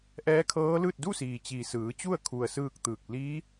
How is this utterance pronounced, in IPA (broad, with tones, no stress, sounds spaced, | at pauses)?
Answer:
ʔ ɛː˧˥ kʰ ɤː˧˥ l ɯː˥˨ t̚ d u˥˨ s iː˩ t͡ɕ i˩ s ɯː˩˧ t͡ɕ u˥˨ ə̯ kʰ u˩ ə̯ s ɯː˥˨ k̚ t̪ ɯː˧˩ k̚ l iː˧˥